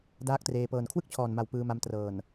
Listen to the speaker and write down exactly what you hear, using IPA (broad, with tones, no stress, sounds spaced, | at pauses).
d aː˦˥ k̚ t r eː˧ p ɤː˨˩ n kʰ w ɯ˥˩ k̚ t͡ɕʰ ɔː˨˩ n m a˨˩ w p ɯː˧ m a˧ m t r ɤː˨˩ n